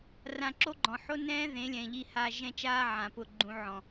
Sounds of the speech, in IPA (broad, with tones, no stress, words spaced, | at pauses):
rã˧ ǁo˦ɡ͡ǃɔ̃˨ ħo˦nɛ̃ː˦ ðẽ˨˦lʲɛ̃˨ʎi˧ha˧ ʒɛ̃˦t͡ʃaː˦ʕã˨pʊ˧ ɡ͡ǃũ˧ʕɔ̃˨